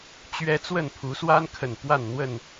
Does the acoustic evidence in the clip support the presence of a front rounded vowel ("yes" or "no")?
no